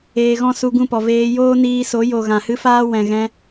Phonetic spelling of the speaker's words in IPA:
eː˧ ɣ ɔ̃˦ s u˧ ɡ ũ˦˨ p ɔ˨ v eː˧ j oː˦ n iː˧ s o˨˦ j o˨ ɣ ã˨ h ɨ˦ f aː˦ w ɛ̃˨ ɣ ɛ̃˧

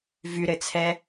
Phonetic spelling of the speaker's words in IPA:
v y ɾ ɘ t͡sʰ ɛ

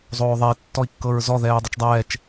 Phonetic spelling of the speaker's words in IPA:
zˤ oː ðˤ ɛ i̯ tː ɔ i̯ kː ɤ ɹ z ɔ ð ɛː u̯ dˤ ɛ t͡ʃ dˤ ɛː t͡ʃ

